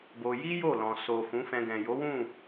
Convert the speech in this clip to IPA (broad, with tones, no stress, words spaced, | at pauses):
bo˧ ji˦ jo˦˨lɔ̃˨ so˨ fũ˨˦fɛ̃˧ ɡɛ̃˨jo˨˦wũ˦˨